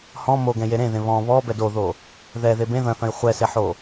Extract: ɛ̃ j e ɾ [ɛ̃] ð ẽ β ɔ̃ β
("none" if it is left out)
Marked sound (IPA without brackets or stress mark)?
ẽ